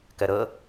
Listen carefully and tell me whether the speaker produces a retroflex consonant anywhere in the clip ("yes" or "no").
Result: no